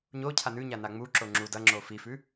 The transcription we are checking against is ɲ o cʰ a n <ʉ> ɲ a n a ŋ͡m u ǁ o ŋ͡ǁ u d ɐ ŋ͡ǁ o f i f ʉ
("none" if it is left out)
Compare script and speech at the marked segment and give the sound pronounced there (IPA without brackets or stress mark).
ʉ